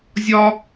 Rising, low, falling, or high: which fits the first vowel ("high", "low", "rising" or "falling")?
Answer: high